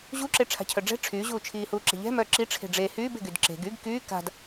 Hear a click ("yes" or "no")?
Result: yes